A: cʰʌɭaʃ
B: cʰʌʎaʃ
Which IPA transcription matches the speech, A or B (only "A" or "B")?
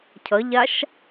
B